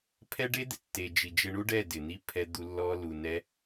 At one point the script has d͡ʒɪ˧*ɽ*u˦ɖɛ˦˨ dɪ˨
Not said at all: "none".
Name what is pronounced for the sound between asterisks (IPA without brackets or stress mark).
ɳ